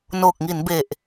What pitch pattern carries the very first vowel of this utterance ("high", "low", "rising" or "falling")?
low